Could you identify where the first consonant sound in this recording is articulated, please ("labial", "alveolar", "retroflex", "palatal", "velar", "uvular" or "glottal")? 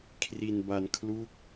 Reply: velar